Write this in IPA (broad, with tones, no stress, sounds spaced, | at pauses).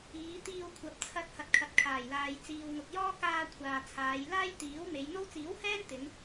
iː˨˧ t̪ iː˧ w kʷʰ ɐ˨ p̚ t͡sʰ ɐ˧ t̚ h ɐ˨ t̚ kʰ ɐ˨ t̚ kʰ aː˨˩ j l aː˨ j t͡s iː˨ w ŋ ʊ˨ k̚ j ɔː˥ k aː˧ kʷʰ aː˨ t͡sʰ aː˨˧ j l aː˥ j t̪ iː˨˥ w m e˨˧ j n̪ o˥ w t͡s iː˨˥ w h ɛː˥ n t̪ ɪ˨˧ ŋ